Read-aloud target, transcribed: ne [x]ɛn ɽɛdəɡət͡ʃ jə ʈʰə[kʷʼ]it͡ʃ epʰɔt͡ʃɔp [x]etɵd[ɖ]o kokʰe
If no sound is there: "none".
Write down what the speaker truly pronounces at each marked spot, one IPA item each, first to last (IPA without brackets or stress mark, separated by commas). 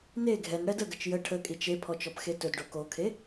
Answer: ɡʱ, kʼ, x, ɖ